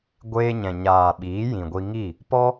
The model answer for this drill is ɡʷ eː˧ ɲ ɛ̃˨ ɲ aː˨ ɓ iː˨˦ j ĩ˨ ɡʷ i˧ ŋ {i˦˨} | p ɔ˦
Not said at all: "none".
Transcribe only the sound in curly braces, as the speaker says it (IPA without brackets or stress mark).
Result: i˦˨